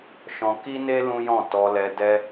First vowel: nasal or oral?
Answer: nasal